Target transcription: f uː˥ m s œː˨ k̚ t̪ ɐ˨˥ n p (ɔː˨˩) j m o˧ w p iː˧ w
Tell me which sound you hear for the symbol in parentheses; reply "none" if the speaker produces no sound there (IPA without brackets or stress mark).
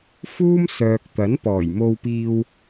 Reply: ɔː˨˩